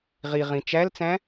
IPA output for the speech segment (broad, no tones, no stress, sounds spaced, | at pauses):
ʁ i ʁ ĩ t͡ʃ æ l t͡s æ̃